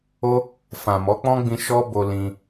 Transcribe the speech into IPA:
o˦ | fã˨mɔ˨˦k͡pɔ̃˦ɡ͡bĩ˧ ʃɔ˦bo˧lĩ˧

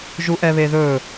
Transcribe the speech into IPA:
ʒuʔɛβeðɵ

